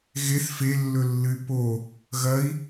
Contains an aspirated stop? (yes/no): no